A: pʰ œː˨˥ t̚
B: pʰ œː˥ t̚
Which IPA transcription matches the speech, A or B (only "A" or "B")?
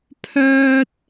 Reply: B